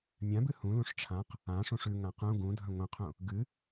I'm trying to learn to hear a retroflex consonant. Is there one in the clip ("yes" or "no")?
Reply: yes